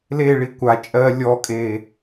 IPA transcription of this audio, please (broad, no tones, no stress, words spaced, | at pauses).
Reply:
leɭi kʷa t͡ʃʼɜ lʲɔkʼe